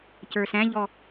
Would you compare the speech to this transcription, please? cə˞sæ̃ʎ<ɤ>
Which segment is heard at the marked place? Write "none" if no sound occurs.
ɔ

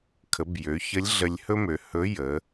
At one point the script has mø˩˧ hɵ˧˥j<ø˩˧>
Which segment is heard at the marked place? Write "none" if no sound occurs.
ə˩˧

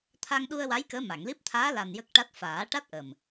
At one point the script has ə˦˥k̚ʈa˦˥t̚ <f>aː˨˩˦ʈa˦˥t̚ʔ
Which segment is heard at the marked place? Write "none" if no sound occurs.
f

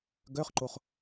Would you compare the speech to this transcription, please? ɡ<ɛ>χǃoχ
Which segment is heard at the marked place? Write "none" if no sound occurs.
œ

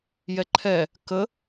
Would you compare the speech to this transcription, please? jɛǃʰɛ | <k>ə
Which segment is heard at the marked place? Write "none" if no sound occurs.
k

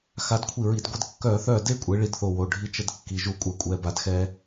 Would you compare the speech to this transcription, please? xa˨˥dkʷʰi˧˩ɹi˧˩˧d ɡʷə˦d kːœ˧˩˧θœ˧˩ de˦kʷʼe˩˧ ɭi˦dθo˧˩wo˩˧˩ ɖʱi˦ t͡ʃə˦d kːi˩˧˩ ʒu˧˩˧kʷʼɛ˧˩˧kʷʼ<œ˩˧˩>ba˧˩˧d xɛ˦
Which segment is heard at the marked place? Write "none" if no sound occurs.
ɛ˩˧˩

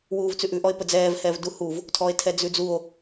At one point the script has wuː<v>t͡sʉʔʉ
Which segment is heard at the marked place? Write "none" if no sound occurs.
v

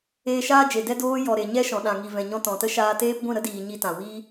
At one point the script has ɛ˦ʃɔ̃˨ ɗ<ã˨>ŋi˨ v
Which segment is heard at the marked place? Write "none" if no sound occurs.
ã˨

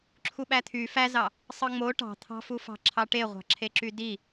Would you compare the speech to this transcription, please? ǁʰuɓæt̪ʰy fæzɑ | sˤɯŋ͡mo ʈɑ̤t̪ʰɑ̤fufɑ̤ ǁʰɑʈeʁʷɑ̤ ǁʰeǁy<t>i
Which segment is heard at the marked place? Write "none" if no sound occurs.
d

